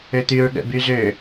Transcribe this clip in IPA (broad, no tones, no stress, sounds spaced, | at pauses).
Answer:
ø t̪ y ɹ ɠ ə̰ b y z ø